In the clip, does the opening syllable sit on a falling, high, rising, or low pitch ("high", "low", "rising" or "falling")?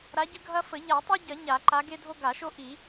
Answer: rising